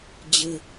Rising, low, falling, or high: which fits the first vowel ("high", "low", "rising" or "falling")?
low